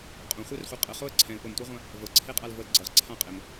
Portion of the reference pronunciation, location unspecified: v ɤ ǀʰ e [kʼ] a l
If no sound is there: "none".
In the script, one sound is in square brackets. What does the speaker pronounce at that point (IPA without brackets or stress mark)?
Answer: qʼ